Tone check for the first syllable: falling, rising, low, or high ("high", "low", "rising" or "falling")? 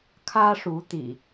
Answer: high